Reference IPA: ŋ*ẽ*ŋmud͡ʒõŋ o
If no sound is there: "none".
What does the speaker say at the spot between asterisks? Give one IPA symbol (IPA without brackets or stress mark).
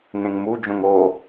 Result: ẽ